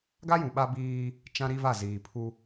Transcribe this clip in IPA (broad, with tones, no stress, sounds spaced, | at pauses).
ɡ a˦ j ũ˨ ɓ a˦ b iː˦ | t͡ʃ ã˦ ɾ i˦ v a˦˨ z iː˨ pʰ u˦